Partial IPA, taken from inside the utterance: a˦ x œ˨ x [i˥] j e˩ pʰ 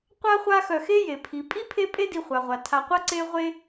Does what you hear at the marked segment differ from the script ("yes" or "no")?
yes